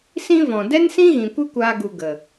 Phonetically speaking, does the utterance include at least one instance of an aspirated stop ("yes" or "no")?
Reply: no